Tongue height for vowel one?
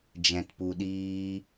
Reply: mid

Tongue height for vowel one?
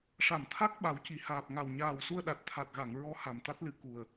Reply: low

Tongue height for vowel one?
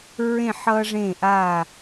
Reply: mid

